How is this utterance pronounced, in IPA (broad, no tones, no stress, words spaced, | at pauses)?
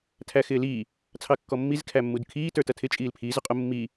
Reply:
tʰæxɪːliː | t͡sʰɑkːɔmːiz kʰæmːudkʰiː tə˞tʌtʰɪ t͡ʃʼiːlpʰiːz ʊqʼʊ mːi